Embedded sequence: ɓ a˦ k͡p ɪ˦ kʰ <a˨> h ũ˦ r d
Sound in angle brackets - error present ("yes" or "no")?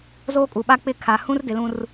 no